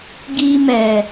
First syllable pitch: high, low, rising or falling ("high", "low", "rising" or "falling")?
high